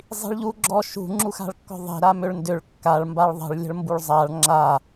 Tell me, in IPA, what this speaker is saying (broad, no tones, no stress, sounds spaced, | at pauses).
zˤ i̤ ɭ ʎ u ɡ͡ǁ ɔ ʃ ṳ ŋ͡ǁ u x a̤ ɭ kː ɔ̤ ðˤ i̤ ɾ a m ʏ ɭ n d ʏ ɭ kː a ɭ m b a ɭ ðˤ ə̤ ɭ lʲ ə̤ ɭ m b u ɭ zˤ a ɭ ŋ͡ǁ a